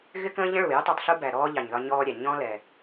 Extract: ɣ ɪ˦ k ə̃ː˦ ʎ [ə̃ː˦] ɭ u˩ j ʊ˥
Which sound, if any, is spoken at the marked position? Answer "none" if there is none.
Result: ə̃˦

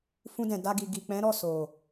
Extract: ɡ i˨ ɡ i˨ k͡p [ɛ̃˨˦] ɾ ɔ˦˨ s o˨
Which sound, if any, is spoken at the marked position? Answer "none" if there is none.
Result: ɛ̃˨˦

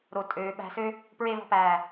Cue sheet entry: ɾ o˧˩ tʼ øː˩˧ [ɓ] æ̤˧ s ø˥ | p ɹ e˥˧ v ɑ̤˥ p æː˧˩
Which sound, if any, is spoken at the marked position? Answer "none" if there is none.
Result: ɓ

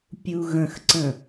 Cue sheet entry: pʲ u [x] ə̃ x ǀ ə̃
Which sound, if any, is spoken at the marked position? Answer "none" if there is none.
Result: ɣ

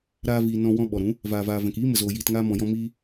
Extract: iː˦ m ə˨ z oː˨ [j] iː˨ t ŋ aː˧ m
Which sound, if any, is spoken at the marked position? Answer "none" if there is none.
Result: j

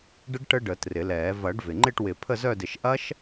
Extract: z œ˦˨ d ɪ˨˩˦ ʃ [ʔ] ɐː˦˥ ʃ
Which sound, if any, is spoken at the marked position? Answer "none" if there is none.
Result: ʔ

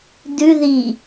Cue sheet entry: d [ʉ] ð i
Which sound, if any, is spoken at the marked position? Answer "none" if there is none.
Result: ʉ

